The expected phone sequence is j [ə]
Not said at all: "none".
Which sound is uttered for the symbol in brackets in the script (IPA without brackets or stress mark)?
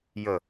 ə